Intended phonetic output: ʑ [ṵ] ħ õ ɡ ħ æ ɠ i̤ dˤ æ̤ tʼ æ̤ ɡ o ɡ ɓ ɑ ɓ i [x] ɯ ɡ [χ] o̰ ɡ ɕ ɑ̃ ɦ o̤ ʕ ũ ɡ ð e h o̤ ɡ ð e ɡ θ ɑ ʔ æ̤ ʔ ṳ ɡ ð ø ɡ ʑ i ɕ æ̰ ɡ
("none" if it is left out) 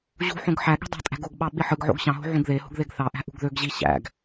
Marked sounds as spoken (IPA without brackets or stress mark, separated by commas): ṳ, ħ, ʕ